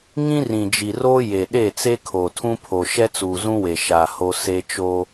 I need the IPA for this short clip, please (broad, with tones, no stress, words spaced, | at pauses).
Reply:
ŋĩ˦rĩ˨d͡ʒi˨roː˦ je˨ɗe˦˨ t͡se˦kʰo˨tʰũ˦pʰo˨ ʃɛ˦t͡suː˨zũ˦we˨ ʃa˨ ho˦ se˦t͡ʃo˦